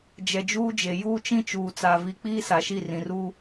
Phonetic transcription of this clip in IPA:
d͡ʒ ɛ˨ d͡ʒ uː˦ d͡ʒ e˨ j uː˦ t͡ʃ ĩ˦ t͡ʃ uː˨ t͡s aː˨ v i˨ k͡p iː˦ s a˨ ʃ i˦˨ r ĩ˨ r uː˦

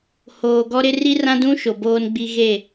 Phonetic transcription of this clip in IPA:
h oː˨ ɡ ɔ˦ ɾ ɪ˦ r i˦ r ã˦ d ũ˦ ʃ o˨ b oː˦ n ɡ͡b i˦ ɣ e˦˨

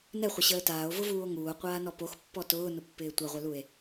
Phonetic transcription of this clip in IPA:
n ɛ χʷ ə ɕ əː t aː o̯ v ʊ v uː o̯ ŋ uː o̯ qʷ aː n ɔ p o x pː ɔ t ʊː n ʊ pː ɪː tʷ a ʁʷ ɛ l u e̯

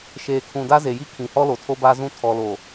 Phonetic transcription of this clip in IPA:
ʃ eː˨ kʰ ũ˨ d a˦ z e˨ j i˦ kʰ ĩ˨ h ɔ˦ l o˨ tʰ o˦ b a˦ z ũ˦ tʰ ɔ˨ l o˨

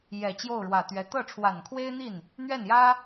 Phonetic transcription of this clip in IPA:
j ɛ˨˩ t͡ɕ j o˥˩ ʊ̯ ɻ w ä˨˩ t̪ ɥ ɛ˧˥ t̪ ɤ˥˩ ʈ͡ʂʰ w a˨˩ n kʰ w e˥ ɪ̯ n̪ i˥˩ n | n̪ ɥ ɛ˥˩ n j ä˥

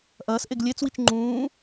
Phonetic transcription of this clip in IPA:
ʔ ɐː s ʔ e ɡ lʲ e t͡s w i t͡ʃ ŋ͡ǃ ũː

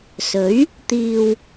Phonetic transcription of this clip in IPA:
s ɵ˨˥ ɥ | t̪ iː˨ w

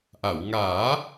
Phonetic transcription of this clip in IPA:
ʔ a˨˩˨ w ŋ aː˨˩˦

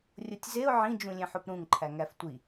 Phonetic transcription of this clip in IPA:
rʲ o tʲ z e ʊ̯ ʕ ĩ d͡ʒ ũ lʲ ẽ ħ o p ɾ ũ ŋ ǃʰ æ ŋ æ f tʷ i

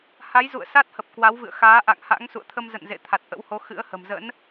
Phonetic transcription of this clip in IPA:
h a˨˦ j z ṵ˧˨ ə̯ s a˦˥ t̚ h ə˨˩ p̚ k w a˨˦ w v ɨ̰˧˨ ə̯ x aː˨˦ ʔ a̰˧˨ ŋ h a̰˧˥ ŋ s ṵ˧˨ ə̯ t̪ʰ ə˧ m z ə̰˧˨ n z ḛ˧˨ t̪ʰ a˨˩ t̚ ʔ ə̰˧˥ w h o˨˦ x ɨ̰˧˥ ə̯ h ə̤˨˩ m z ə̰˧˥ n

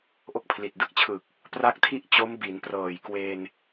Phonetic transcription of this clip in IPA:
ʔ o˥˩ k̚ pʰ l i˨˩ t̚ d ɯ˦˥ k̚ t͡ɕʰ ɯ˨˩ k̚ | p r a˥˩ k̚ tʰ i˥˩ ʔ t͡ɕ o˦˥ m b i˩˦ n p r ɤː˨˩ j k w e˧ n

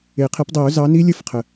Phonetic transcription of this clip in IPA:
e˨˩˦ qʰ e˨˥ p dˤ i˨˩˦ ʊ̯ z ɑ˨˥ n i˦˥ lʲ ɘ˦˥ f qʰ ə˨˩

